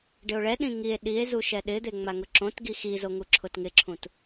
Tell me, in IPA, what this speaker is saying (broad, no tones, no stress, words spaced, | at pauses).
ɖɪo̯ɭɛɗĩ ŋie̯ ɗie̯ zuʃɛɗɪd̪e ŋ͡maŋʊǁõtɡi xizo ŋuǁʰʊtŋɪǁʰũt